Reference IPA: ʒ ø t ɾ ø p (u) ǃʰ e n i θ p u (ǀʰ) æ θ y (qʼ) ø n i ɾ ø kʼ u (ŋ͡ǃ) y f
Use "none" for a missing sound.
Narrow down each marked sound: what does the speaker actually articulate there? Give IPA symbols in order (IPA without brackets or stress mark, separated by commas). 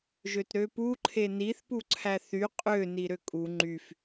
u, ǀʰ, qʼ, ŋ͡ǃ